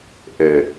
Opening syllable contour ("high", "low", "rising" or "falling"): low